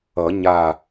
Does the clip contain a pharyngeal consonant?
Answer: no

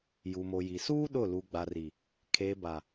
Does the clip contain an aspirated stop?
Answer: yes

